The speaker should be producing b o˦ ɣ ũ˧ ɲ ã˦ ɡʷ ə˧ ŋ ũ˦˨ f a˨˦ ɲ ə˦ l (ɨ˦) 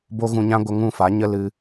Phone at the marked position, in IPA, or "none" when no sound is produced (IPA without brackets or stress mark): ɨ˦